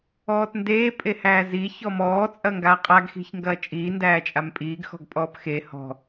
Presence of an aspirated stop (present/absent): absent